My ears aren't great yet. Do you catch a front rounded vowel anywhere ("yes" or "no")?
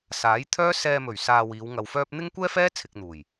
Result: yes